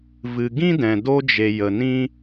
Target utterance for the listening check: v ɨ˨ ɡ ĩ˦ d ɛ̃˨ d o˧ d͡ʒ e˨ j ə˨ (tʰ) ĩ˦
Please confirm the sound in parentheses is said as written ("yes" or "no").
no